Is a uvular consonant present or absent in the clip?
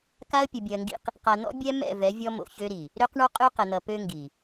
present